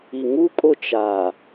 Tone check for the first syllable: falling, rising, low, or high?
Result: low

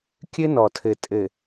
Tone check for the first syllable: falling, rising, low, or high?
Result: high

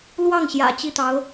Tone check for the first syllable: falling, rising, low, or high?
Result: falling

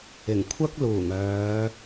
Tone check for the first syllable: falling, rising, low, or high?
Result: low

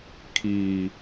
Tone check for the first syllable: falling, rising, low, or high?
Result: low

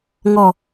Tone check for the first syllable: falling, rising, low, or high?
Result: low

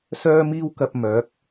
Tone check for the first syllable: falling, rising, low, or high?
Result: high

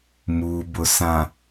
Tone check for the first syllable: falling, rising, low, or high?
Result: low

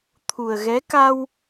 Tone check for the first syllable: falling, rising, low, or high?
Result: low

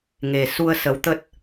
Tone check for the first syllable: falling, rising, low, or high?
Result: low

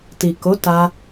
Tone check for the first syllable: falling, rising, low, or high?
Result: low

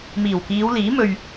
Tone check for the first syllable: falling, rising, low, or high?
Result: low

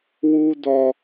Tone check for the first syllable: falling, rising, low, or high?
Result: high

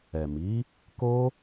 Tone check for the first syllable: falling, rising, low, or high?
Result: low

